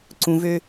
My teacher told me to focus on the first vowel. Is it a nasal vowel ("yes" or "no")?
yes